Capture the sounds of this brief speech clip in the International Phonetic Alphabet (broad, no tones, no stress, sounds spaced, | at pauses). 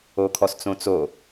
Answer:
o kʰ ɔ s t͡s õ t͡s o